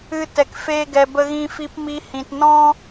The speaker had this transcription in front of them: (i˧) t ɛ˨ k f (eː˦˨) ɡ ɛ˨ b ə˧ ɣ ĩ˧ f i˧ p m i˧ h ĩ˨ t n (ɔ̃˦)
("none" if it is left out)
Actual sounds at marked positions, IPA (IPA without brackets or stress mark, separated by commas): ɨ˧, eː˧, ɔ̃˦